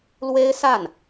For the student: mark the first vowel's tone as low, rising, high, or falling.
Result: high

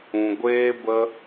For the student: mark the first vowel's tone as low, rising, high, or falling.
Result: low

